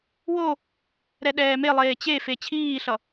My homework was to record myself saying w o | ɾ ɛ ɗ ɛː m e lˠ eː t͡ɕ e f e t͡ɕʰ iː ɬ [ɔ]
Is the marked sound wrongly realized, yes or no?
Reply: yes